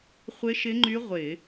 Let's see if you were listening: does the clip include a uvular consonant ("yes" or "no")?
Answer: yes